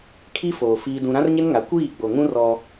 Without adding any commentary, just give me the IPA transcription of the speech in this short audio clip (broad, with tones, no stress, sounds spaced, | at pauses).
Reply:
kʰ i˦ f oː˨ f iː˦ d ũ˦ ɾ ã˦ r ɲ ɪ˦ n ŋ a˨˦ kʷ iː˦˨ ɡ͡b o˨ ŋ ũ˦ r ɔ˦